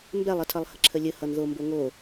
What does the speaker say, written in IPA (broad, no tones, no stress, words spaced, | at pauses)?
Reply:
mbɛlˠətʰʌlˠ həǁʰəlʲə hʌnðombo ŋo